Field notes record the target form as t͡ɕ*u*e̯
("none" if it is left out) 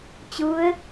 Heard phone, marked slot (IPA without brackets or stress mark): ɯ